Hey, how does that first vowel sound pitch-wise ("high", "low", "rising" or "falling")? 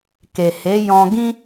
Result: low